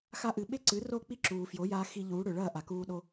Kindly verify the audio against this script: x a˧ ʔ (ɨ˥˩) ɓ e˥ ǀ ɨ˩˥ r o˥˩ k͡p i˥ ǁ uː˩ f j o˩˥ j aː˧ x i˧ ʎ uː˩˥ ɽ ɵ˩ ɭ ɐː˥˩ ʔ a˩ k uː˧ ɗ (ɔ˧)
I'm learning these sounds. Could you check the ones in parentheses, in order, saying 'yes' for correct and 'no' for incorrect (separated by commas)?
no, no